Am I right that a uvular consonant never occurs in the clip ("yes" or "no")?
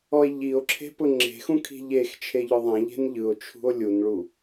yes